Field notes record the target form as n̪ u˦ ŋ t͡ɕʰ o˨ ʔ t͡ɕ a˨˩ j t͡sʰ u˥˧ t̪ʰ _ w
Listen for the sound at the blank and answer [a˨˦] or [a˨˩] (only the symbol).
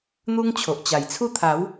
a˨˦